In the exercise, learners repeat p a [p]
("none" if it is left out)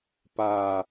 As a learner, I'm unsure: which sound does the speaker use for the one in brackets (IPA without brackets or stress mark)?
none